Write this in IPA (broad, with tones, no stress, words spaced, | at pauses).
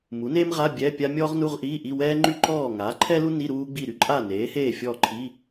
mu˩˥neː˥mʁa˧˥˧ bʲɛ˧˥˧pʲa˥ mʲɔː˥ʁ nu˧˥˧ʁʔiː˧˥˧ ʔi˧˥˧ wɛː˥ŋ͡ǃy˥ǃɔː˥˨ ŋaː˩˥ǃʰɛ˥lu˥ ni˧˥˧ ɾuː˥ɡ͡bi˥˨ ɾy˥ǃʼa˥˨ neː˩˥heː˥˨fʲɔː˥˨ǃʰi˧˥˧